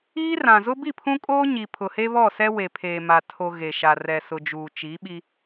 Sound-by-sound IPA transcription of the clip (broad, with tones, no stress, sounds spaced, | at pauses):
iː˦ r ã˨ z ʊ˦ b i˦˨ pʰ ũ˦ kʼ oː˦ ɲ i˨ pʰ ʊ˨ h e˦ β ɔ˦˨ s ɛ˦ w e˨ pʰ eː˨ m a˨ tʰ o˨ ɣ e˨ ʃ a˨ r ɛ˨ s ʊ˨ d͡ʒ uː˨ t͡ʃ i˨˦ ɓ i˦